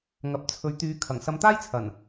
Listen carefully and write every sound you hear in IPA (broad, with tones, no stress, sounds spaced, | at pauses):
ŋ ɐ˨˥ p̚ t͡sʰ ɵ˨˥ ɥ t̪ yː˨˧ kʰ ɐ˨˩ ŋ s ɐ˧ m t̪ aː˥ j t͡sʰ ɐ˨˩ n